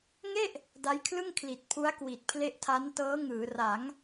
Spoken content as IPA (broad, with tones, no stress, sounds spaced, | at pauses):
ŋ e˥˩ ʔ | d a˦˥ j kʰ l ɯ˥˩ ŋ kʰ l i˨˩ t̚ pʰ u˦˥ a̯ k w i˨˩ t̚ pʰ l e˦˥ ʔ tʰ a˦˥ n t ɤː˦˥ ŋ ɯː˩˦ r a˩˦ ŋ